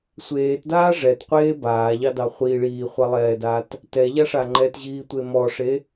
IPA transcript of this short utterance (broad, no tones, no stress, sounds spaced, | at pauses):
sʷ eː t d aː ʐ ɛ t qʷ eː b aː ʎ ɑ d ɑ χʷ i ɭ iː χʷ ɑ lˠ ɛː d aː t | t ɛ ʎ a ʂ a ŋ͡ǃ ɛ t ʑ iː tʷ e m ɔ ʂ e